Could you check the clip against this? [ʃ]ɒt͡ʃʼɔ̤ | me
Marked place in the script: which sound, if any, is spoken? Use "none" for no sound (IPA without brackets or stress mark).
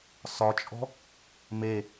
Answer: s